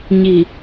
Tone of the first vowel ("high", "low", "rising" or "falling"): low